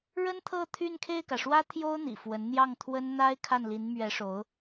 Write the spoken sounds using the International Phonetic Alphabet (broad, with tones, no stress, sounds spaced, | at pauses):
ɻ ə˥ n t̪ʰ ɤ˥˧ t̪ʰ y˥˧ n kʰ e˥˩ ɪ̯ k ä˩ ʂ w ä˥ t̪ʰ j o˥ ʊ̯ n̪ ḭ˨˩ f w ə˧˥ n n̪ j ɑ˥˩ ŋ t̪ʰ w ə˥ n n̪ a˥ ɪ̯ kʰ a˥˩ n l i˧˥ n m ɥ ɛ˧˥ ʂ o˧˥ ʊ̯